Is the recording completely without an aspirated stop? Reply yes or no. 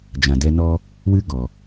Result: yes